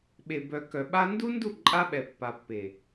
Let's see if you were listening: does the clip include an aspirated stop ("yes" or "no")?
no